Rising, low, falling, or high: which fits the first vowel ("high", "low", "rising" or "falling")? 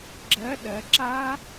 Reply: rising